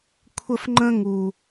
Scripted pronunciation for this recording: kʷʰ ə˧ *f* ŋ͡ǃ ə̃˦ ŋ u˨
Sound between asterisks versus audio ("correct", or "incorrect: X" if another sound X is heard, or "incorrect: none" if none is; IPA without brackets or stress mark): correct